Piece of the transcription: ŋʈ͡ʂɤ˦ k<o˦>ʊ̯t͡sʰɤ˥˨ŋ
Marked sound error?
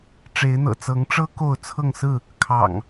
yes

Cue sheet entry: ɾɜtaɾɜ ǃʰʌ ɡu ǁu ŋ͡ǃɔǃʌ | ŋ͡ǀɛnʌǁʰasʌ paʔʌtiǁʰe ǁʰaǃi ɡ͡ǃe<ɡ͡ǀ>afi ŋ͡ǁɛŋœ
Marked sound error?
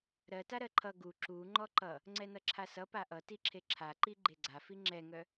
no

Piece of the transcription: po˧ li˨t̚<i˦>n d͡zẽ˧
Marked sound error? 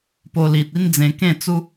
no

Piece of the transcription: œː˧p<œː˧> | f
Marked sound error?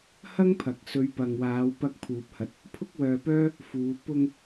yes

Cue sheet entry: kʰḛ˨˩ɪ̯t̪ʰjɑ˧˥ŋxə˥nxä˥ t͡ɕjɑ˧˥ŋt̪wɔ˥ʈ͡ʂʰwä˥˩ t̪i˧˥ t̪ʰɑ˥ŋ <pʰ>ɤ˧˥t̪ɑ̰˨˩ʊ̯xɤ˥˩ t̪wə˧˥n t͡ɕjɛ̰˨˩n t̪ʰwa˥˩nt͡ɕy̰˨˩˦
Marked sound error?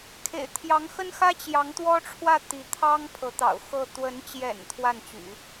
no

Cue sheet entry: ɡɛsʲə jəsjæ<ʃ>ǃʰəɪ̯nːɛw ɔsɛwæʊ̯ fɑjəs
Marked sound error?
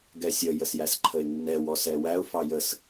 yes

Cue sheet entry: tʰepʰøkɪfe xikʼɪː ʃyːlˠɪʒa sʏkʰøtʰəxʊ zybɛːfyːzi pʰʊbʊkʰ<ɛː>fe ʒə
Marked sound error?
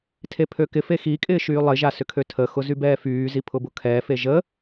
no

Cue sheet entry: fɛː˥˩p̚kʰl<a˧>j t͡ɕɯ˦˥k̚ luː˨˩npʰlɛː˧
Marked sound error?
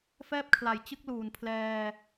yes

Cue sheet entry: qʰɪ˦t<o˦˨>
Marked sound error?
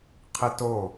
no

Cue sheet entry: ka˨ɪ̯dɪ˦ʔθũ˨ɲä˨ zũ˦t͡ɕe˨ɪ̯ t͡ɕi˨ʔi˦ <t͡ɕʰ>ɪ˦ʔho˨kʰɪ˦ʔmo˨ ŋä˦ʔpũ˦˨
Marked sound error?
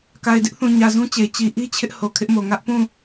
no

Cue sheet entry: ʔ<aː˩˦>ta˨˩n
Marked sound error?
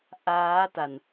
yes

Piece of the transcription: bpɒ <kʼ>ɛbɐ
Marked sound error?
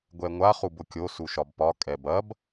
no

